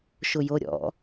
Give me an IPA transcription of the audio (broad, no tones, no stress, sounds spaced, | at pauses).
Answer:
ʃ ʊ j o ɾʲ ɔ̰